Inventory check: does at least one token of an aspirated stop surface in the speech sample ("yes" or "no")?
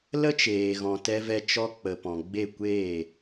no